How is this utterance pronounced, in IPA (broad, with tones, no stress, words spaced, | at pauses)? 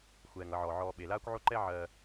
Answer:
xʷɛː˩ŋʌ˨ʕɔ˩ ʕɔː˨ ɓe˩laː˦kʷʕo˦ ǃɛ˦ʕɜː˨